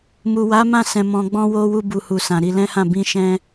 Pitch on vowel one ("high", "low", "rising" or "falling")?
low